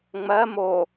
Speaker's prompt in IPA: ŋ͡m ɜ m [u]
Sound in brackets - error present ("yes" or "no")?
yes